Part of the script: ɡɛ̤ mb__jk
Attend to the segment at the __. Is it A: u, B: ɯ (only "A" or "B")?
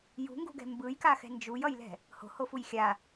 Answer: B